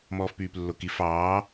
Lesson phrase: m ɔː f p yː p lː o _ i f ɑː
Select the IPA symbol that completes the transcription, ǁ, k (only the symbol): k